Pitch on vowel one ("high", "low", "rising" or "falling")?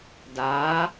rising